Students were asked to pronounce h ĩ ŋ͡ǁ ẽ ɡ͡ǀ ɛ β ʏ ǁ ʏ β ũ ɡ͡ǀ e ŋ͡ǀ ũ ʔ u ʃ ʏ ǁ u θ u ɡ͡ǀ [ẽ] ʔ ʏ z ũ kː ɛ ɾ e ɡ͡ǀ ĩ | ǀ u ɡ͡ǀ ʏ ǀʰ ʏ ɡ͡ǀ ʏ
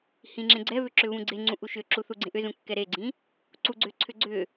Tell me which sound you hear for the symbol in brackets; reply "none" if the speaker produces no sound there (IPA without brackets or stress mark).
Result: ẽ